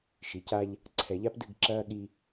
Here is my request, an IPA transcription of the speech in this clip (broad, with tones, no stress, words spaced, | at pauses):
ʃi˨ca˦ʎ | ǀʰɛ˨ʎa˦pdɨ˦˨ɡǁɐː˦ ɠi˦